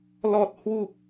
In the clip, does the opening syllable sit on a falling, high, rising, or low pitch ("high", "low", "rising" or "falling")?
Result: low